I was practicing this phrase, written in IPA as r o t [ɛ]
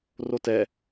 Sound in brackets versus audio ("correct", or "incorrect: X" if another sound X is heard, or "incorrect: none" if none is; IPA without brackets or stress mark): correct